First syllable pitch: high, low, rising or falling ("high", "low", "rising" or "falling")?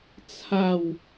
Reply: falling